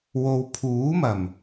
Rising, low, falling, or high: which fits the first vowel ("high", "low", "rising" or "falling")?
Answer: low